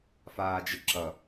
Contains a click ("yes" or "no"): yes